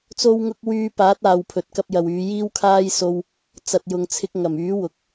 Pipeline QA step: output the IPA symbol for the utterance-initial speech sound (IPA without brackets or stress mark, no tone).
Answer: t͡s